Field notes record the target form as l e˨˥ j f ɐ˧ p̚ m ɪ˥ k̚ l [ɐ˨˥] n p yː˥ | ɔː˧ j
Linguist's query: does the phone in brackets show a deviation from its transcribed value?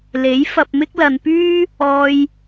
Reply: yes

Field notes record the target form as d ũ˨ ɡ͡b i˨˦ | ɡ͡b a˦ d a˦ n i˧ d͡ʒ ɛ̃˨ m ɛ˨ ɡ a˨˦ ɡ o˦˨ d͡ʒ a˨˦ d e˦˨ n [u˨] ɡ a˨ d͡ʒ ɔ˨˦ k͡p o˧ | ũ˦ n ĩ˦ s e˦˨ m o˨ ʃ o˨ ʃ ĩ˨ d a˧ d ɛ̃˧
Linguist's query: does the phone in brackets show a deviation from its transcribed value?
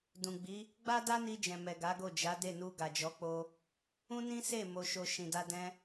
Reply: yes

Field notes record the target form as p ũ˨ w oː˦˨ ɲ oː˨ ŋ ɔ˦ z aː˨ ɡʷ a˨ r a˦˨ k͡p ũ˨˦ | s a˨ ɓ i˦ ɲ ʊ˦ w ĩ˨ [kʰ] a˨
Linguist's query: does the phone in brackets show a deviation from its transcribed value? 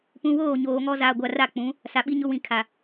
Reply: no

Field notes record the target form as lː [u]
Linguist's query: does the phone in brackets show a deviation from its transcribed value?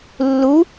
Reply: no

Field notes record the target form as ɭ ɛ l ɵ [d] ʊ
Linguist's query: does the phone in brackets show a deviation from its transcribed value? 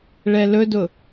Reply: no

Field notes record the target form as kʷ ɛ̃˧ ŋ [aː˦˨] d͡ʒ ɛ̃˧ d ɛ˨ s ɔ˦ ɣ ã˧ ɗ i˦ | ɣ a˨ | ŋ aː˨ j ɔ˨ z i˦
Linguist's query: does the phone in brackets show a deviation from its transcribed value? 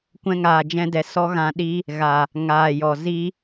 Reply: yes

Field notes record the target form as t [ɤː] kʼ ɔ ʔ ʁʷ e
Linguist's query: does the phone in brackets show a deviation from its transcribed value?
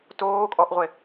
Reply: yes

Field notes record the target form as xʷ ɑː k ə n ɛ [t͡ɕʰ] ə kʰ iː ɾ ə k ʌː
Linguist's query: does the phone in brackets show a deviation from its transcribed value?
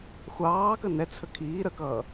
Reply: yes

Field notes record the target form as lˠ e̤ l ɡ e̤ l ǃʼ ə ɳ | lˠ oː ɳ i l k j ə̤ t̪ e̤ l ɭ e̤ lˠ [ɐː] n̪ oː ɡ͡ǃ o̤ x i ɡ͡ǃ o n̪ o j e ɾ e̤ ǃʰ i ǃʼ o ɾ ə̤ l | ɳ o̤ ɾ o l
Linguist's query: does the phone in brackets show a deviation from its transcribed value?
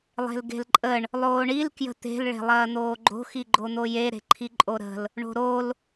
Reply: no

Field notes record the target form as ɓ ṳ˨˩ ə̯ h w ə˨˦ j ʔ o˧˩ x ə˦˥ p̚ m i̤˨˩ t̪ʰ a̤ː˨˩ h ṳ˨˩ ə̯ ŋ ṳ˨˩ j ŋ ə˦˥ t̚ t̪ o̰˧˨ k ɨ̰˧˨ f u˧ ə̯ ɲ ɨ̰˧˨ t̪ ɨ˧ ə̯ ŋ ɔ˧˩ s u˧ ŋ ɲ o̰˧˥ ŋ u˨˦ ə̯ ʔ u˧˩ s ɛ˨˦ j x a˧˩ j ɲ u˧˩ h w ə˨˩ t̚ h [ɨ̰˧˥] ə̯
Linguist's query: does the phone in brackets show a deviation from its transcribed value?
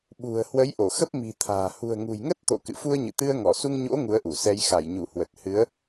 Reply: yes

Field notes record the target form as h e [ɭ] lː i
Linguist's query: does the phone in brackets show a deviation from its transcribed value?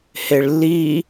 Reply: no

